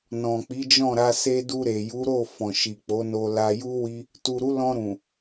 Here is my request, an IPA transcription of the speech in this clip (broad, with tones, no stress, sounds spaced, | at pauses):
n ɔ̃˨ k͡p i˨˦ d͡ʒ ɔ̃˦˨ ɾ a˧ s e˧ d u˧ ɾ e˨ j u˨˦ ɾ o˦˨ f ɔ̃˨ ʃ i˨ k͡p o˨˦ n o˧ l a˧ j u˦ w i˦ | t u˨ ɾ u˨˦ l ɔ̃˧ ɾ ũ˨